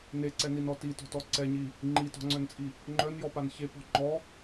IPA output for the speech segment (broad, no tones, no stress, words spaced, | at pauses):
neǀɛninɔ titɔ̤tɔ ǀɛɲi | ŋ͡ǃitɔ̤ŋ͡ǀœnt͡sʼi | ŋ͡ǃœnjɔpan çepɔ̤ ŋ͡ǃɔ